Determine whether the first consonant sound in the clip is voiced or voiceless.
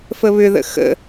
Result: voiceless